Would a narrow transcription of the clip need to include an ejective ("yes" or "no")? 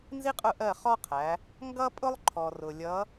yes